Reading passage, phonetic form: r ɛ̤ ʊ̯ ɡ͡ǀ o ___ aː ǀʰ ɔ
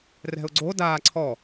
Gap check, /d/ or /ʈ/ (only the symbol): d